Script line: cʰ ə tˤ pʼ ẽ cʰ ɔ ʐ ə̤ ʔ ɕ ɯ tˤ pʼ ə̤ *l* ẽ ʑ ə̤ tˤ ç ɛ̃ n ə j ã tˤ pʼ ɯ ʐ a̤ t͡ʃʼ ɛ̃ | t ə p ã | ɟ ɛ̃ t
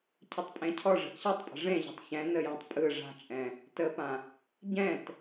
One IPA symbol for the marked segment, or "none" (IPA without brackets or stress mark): ʐ